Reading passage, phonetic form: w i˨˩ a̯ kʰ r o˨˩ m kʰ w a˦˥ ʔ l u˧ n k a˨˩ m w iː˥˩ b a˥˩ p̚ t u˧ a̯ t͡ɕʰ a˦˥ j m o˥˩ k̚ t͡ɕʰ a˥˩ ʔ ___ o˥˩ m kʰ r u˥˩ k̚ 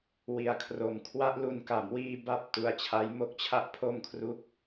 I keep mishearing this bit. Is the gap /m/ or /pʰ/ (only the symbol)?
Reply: pʰ